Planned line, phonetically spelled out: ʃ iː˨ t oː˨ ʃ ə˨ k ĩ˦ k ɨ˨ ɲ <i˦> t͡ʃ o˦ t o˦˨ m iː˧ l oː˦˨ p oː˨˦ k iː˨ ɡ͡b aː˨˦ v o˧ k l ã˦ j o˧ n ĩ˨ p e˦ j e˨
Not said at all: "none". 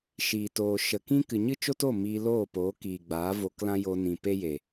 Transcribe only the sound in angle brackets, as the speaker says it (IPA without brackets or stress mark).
ɨ˦